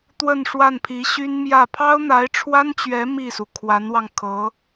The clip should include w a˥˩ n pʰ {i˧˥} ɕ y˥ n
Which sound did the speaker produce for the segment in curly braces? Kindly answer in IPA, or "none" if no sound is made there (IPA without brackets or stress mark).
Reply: i˧˥